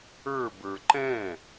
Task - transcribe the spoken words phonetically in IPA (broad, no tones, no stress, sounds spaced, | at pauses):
ə˞ b ə˞ ǃ ɛ̃